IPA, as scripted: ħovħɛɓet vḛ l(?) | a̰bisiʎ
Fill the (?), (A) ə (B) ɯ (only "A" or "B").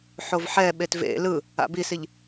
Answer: B